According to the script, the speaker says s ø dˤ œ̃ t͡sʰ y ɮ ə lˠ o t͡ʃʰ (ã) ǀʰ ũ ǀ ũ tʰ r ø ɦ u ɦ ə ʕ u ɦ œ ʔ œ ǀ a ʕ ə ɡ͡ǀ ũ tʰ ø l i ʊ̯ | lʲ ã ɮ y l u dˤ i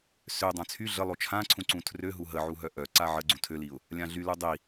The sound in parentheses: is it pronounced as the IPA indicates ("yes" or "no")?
yes